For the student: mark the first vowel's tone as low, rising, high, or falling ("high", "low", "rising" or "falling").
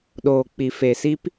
low